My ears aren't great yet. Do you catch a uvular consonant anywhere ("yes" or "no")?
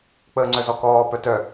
no